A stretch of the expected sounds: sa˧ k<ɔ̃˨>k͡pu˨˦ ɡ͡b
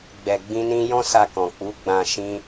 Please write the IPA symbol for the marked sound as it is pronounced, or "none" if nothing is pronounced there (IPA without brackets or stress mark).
ɔ̃˨